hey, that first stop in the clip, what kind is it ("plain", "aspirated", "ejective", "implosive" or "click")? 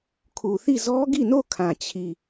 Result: aspirated